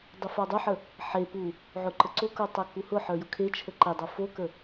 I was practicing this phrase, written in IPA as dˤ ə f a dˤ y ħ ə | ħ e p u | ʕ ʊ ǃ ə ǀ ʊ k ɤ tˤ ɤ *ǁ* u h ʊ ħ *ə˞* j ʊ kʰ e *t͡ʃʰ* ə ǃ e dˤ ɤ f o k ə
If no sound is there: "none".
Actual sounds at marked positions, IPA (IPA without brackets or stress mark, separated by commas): k, ə˞, t͡ʃʰ